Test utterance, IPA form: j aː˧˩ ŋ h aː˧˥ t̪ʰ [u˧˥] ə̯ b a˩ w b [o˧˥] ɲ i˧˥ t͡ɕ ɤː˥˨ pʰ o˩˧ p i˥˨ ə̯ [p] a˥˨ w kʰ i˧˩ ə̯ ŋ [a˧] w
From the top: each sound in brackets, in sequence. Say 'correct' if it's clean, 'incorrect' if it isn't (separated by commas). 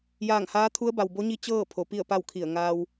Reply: correct, correct, correct, incorrect